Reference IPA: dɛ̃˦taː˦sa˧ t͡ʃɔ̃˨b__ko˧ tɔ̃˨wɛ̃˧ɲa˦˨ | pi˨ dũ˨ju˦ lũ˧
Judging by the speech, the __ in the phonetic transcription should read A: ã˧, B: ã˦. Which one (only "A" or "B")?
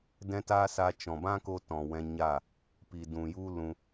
B